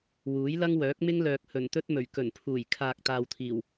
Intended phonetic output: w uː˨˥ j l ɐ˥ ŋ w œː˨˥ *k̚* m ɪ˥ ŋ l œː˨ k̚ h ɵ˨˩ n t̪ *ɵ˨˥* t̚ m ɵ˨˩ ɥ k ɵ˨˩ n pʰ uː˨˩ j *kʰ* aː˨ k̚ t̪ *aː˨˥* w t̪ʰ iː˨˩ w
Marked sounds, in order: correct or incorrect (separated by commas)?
correct, incorrect, correct, incorrect